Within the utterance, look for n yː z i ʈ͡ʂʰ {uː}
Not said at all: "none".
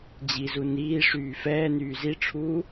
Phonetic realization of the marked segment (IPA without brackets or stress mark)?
uː